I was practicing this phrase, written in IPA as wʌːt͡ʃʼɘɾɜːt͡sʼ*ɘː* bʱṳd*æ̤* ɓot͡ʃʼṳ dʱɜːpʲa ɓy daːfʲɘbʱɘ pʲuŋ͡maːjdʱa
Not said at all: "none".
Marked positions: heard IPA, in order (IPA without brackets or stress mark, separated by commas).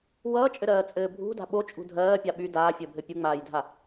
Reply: ɘː, a̤